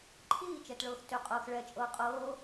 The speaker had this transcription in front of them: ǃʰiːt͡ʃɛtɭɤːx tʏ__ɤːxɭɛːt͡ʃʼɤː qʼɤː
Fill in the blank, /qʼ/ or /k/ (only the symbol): qʼ